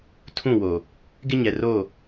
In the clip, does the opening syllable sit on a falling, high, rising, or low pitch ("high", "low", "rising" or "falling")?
falling